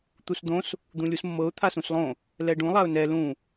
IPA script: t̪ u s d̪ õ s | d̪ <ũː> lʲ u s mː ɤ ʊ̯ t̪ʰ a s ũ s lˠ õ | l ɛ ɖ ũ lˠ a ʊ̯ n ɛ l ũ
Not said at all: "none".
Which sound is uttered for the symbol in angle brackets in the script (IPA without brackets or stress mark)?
ũ